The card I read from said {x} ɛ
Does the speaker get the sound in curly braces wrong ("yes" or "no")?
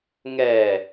yes